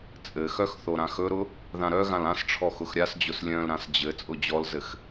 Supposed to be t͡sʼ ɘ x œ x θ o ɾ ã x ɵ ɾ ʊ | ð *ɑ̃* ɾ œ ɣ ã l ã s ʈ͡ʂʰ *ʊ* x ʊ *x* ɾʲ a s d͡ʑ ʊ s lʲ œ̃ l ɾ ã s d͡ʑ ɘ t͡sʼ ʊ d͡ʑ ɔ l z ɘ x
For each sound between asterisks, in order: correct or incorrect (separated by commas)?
incorrect, incorrect, correct